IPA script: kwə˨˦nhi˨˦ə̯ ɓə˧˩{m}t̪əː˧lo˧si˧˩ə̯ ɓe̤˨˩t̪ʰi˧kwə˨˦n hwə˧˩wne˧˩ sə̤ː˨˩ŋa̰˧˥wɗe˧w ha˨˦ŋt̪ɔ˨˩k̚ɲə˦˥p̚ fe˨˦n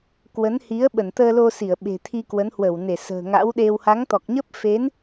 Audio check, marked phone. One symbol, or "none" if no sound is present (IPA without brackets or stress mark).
n